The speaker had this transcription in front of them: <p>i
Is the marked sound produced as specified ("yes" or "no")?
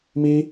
no